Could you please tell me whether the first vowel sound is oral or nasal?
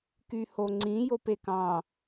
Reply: oral